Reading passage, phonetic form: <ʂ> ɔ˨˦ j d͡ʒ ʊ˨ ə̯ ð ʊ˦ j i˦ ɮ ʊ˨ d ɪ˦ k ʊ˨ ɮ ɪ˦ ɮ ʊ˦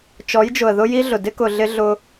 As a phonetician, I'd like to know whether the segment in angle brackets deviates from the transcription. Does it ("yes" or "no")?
yes